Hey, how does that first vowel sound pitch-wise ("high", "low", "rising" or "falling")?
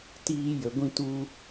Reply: high